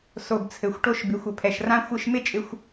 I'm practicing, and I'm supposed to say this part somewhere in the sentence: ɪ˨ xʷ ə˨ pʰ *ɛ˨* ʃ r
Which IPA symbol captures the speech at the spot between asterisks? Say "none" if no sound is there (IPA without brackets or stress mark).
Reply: ɛ˨